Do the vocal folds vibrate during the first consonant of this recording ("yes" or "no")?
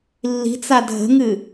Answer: yes